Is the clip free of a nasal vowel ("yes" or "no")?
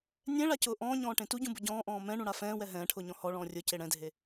no